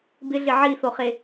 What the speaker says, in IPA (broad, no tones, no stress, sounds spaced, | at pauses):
b ɪ ɮ ɪ ʕ i θ o χ e